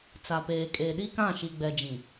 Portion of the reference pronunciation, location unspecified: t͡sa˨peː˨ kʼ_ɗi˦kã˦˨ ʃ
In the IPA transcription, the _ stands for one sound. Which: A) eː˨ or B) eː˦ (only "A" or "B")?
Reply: A